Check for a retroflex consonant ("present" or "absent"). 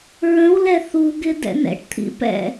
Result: present